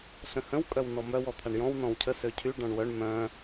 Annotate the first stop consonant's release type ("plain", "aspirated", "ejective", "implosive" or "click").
ejective